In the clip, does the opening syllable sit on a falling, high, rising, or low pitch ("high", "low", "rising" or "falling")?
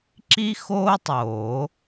high